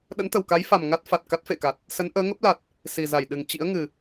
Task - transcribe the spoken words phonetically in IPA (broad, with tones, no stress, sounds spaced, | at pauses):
ɗ ə̰˧˥ n t̪ ə˨˩ w k a˨˦ j f a˨˩ m ŋ a˦˥ t̚ f a˨˩ t̚ k a˦˥ t̚ f ḛ˧˨ k a˨˩ t̚ | s ə˨˦ n ʔ əː˨˦ ŋ ə˦˥ p̚ l a˨˩ t̚ | s i˨˩ z a˧˩ j ɗ ɨ˨˩ ŋ t͡ɕ ḭ˧˥ ə̯ ŋ ɨ˨˩